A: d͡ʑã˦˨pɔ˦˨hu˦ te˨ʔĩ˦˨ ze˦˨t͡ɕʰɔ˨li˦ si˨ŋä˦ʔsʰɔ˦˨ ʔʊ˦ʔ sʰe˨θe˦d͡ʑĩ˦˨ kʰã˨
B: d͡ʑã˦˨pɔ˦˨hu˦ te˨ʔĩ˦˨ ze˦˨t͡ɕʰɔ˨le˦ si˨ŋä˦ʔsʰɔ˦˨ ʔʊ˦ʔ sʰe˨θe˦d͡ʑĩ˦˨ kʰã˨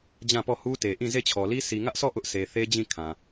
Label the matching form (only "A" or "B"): A